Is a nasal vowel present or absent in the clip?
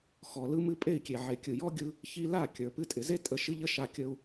absent